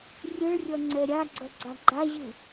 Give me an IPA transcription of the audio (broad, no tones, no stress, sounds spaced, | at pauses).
rʲ ɯ ɭ rʲ ʌ ŋ͡ǀ ɛ ɾʲ a ɡ͡ǀ ʌ ɡ͡ǀ a ɡ͡ǃ a ʑ ɯ